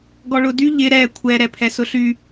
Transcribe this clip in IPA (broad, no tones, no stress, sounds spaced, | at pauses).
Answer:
ɡ ɔ ɭ ʊ d y ʎ ɪ ɾ ɛ kʷʰ ɛ ɾ ɛ pʰ ɛ s ʊ ɬ y